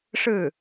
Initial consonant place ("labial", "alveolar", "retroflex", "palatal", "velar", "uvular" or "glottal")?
retroflex